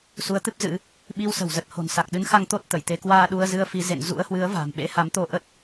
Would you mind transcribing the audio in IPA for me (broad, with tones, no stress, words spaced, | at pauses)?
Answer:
su˨˦ə̯t̪ɨ˦˥p̚ zɨ̰˧˥ | ɓi˧wsə̤˨˩wzə˨˩t̚ ho̤˨˩nsa˨˩k̚ ɗɨ˨˦nxa˧ŋ t̪o˦˥t̚ t̪ə˧˩j t̪e˨˦kwaː˧ ɗu˧ə̯zɨ˧ə̯fi˨˦ zḛ˧˨n zṵ˧˥ə̯hwɨ˨˦ə̯va̤˨˩m ɓḛ˧˥ha˨˦mt̪o˧ ʔə˦˥t̚